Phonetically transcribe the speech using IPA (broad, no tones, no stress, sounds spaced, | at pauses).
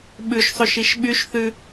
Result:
ɓ ʉ ʃ sˤ ʉ ʃ i ʃ ɓ y ʃ θ ʉ